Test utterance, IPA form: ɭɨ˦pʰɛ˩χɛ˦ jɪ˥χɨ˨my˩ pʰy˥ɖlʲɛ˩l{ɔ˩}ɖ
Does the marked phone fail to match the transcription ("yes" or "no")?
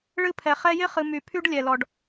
no